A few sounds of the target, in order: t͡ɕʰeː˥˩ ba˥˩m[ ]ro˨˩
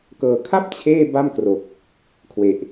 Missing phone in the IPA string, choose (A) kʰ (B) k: B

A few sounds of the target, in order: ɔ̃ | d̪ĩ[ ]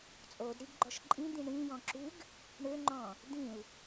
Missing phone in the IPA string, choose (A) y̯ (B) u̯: B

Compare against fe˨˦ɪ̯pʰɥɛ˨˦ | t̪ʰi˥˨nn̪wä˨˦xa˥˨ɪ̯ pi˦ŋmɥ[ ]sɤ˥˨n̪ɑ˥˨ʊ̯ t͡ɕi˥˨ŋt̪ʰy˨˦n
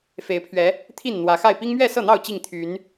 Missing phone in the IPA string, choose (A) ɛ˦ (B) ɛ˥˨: B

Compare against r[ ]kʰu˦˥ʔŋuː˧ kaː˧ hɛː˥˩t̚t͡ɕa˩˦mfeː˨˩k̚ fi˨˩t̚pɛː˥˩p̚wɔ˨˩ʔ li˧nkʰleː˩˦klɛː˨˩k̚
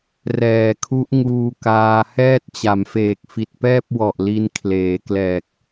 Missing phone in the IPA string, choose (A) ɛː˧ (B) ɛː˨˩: B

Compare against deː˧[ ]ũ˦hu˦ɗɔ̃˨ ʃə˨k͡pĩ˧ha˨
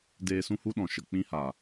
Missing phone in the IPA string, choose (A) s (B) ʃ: A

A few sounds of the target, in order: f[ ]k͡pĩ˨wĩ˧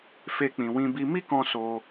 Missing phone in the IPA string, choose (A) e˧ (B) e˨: A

